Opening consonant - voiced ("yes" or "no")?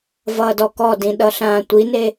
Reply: yes